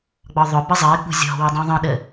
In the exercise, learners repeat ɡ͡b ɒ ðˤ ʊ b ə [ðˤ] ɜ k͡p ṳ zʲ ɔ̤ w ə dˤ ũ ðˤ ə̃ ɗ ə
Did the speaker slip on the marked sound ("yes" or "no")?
yes